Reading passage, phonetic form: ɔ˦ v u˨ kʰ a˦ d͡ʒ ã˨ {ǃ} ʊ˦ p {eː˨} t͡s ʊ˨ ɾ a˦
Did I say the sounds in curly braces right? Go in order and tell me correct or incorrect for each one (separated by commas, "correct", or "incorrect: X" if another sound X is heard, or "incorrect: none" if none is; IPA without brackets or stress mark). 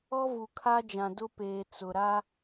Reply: incorrect: d, correct